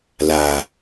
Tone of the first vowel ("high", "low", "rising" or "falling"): low